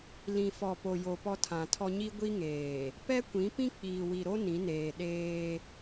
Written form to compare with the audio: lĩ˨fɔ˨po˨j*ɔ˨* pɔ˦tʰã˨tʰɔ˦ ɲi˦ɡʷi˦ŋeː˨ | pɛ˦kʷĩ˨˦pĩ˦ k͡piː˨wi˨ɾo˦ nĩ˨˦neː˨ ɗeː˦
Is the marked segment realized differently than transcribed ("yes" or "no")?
yes